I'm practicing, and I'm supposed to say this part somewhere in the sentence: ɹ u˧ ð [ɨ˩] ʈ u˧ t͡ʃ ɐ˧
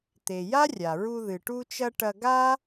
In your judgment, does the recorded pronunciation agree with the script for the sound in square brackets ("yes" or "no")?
yes